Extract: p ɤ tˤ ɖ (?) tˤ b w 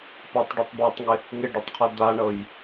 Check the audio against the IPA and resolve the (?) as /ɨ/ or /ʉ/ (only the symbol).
ʉ